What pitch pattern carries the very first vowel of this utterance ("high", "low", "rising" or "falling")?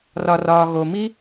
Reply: low